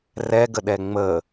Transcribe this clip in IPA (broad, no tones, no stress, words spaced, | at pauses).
rɛɡəɗɛ ŋ͡mə